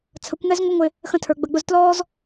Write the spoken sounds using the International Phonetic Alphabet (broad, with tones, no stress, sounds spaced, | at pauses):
t͡sʰ ə˨˦ kʷ ŋ ɛ˦ z ŋʷ ɪ˦ ŋʷ ɪ˧ | x ə̃˧ tʰ ə˞˨ ɡ͡b ə˨ ɡ͡b ʊ˧ z t l ɔː˦ z